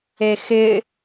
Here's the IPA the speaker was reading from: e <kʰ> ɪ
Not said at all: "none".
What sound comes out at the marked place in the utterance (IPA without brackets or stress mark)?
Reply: x